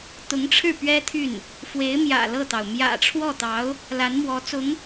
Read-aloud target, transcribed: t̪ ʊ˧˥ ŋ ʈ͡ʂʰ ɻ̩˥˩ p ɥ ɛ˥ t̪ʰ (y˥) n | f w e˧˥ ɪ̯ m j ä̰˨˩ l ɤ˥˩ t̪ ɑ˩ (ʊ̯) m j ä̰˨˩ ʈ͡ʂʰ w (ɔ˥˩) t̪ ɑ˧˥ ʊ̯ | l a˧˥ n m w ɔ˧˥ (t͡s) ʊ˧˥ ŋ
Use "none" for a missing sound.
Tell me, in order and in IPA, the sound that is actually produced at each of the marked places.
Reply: y˥˩, ʊ̯, ɔ˥˩, t͡s

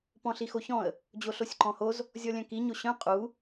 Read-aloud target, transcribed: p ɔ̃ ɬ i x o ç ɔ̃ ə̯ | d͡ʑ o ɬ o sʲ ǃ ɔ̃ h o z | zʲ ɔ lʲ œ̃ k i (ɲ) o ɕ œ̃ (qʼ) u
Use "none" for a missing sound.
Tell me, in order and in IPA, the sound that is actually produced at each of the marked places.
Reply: ɲ, qʼ

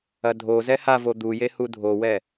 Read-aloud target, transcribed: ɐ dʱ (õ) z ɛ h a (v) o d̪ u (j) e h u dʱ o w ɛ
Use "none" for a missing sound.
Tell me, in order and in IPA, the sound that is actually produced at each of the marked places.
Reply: o, v, j

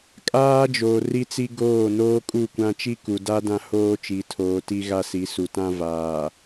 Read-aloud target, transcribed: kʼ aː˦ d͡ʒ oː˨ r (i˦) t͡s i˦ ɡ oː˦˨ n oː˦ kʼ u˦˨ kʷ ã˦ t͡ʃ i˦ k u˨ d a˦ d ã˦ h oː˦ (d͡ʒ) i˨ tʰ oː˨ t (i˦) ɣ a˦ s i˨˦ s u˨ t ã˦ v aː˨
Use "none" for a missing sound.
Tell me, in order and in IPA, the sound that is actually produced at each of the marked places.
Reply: i˦, t͡ʃ, i˦

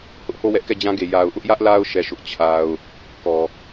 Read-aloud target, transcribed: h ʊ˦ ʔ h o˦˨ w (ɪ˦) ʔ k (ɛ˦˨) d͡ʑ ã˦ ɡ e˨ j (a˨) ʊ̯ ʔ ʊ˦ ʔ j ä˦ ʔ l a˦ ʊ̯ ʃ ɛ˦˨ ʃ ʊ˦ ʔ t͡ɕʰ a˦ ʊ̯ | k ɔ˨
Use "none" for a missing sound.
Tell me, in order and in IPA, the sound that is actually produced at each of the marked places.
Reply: ɛ˦, ɛ˦˨, a˨

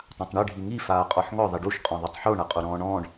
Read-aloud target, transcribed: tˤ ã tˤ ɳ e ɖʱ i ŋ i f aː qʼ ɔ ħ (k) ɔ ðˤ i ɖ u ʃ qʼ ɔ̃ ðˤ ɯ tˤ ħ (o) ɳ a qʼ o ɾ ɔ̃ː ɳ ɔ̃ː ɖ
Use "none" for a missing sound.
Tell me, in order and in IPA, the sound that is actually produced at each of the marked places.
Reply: ŋ, o

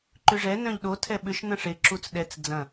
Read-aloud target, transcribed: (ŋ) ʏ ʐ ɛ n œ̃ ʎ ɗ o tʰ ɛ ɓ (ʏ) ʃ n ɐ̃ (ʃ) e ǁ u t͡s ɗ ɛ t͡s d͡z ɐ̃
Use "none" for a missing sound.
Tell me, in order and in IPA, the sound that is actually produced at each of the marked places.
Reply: ǃ, ʏ, ʂ

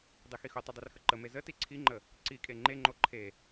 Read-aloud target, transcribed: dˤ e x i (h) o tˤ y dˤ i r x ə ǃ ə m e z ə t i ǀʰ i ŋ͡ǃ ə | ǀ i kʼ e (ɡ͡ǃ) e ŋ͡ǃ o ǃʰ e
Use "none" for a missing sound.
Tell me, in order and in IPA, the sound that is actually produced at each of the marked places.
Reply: x, ŋ͡ǃ

